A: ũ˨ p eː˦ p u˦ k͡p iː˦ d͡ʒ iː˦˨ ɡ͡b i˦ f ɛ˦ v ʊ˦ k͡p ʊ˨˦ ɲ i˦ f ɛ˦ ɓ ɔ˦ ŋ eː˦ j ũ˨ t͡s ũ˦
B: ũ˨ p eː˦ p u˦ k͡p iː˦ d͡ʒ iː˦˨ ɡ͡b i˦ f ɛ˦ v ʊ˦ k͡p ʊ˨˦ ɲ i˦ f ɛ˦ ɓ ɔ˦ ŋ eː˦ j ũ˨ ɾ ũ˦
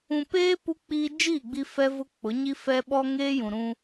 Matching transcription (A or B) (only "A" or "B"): B